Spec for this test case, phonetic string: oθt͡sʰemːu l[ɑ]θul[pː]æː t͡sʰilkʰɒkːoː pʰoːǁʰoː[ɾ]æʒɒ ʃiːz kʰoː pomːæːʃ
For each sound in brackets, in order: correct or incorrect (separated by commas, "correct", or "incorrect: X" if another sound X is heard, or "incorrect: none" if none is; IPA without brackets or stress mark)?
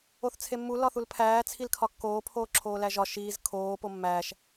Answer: incorrect: ɒ, incorrect: pʰ, incorrect: l